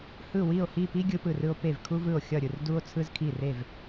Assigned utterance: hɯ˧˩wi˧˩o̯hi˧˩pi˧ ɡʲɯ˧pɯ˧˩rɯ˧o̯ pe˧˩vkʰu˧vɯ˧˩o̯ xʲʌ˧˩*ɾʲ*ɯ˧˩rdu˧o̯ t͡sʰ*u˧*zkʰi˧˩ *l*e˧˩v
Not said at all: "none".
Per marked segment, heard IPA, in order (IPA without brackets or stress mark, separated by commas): ɾʲ, ɯ˧, r